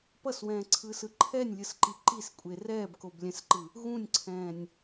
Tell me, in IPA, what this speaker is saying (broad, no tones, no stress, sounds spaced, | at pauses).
p ʌ s w ɛ̃ː ǀʰ ɯː s ɯ ǃʰ ɛ nʲ lʲ ɯ s ǃ i ǃ i s kʷʼ e r ɛː b k o b lʲ ɛ̃ s ǃ ɯ | ɣ ũ nʲ ǀʰ ɛ̃ː nʲ